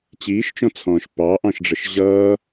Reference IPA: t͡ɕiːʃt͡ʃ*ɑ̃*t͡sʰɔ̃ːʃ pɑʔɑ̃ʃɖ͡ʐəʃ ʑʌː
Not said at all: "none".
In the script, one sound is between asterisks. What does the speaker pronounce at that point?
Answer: ɔ̃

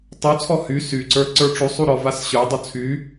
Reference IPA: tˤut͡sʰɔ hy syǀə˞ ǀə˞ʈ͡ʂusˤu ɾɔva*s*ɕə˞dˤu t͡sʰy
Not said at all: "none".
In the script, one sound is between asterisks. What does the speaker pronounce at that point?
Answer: s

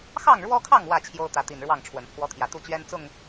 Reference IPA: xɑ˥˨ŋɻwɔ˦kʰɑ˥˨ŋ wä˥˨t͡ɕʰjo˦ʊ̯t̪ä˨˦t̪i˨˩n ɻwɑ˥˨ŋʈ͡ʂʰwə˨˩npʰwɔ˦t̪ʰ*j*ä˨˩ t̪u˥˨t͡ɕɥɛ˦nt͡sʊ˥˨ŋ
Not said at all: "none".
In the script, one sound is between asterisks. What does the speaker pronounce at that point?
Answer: j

